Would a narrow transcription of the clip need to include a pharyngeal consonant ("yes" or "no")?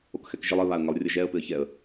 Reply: no